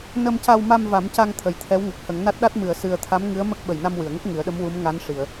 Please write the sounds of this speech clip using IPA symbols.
nə˧mca˧w ma˧m va˨˩˦mca˧ŋ t̪ʰə˨˩˦jt̪ʰɛ˧˥wŋə˨˩k̚ hə˨˩˦ŋna˦˥t̚ɗa˦˥t̚ mɨ˨˩˨ə̯sɨ˨˩ə̯t̪ʰa˧˥m ŋɨ˧˥ə̯mə˦˥k̚ ɓə˨˩jna˧mwɨ˨˩˨ə̯ŋə˦˥k̚ ŋɨ˨˩˦ə̯ɗə˧˥mwu˧˥mŋa˧˥n ʂi˨˩˨ə̯

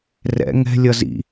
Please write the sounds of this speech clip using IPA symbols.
rɛ̰ ŋɛ̤ lʲʌzḭ

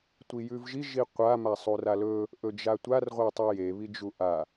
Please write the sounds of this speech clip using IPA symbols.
tʷijʉvʒi ʒiqʷa masˤuralɵ | ʔɵd͡ʒatʷar ʁʷetˤije βid͡ʒuʔa

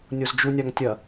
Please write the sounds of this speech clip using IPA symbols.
nʲozd͡ʒunʲaŋ tʲɐ

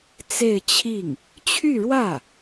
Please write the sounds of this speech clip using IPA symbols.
t͡se˥˧ɪ̯t͡ɕʰi˥˩ŋ | t͡ɕʰy˥˧ɻwä˥˩

